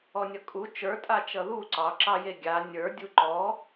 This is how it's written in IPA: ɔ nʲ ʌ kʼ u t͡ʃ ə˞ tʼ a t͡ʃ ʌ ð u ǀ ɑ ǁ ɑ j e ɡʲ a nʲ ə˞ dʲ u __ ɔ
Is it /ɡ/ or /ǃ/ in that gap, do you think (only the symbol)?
ǃ